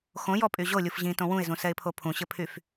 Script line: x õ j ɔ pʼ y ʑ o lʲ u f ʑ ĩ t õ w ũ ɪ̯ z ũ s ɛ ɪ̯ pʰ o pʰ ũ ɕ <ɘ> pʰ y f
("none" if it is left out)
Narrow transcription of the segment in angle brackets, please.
ɘ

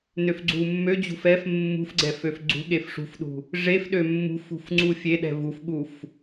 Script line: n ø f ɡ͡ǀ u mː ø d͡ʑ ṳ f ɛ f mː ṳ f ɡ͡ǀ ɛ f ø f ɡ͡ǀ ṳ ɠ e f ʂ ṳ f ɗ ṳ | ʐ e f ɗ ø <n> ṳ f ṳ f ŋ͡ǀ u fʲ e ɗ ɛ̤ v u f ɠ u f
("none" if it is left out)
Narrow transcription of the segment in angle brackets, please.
mː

